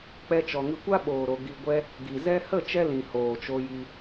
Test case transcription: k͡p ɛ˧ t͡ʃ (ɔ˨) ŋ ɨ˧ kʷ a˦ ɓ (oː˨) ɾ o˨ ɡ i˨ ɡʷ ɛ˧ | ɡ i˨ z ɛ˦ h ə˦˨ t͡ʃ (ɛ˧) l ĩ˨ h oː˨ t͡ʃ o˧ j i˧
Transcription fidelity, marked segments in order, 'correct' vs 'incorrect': correct, correct, correct

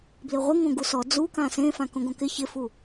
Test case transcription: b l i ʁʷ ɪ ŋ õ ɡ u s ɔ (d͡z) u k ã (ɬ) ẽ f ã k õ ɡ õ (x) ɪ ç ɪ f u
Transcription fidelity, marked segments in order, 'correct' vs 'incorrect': correct, incorrect, incorrect

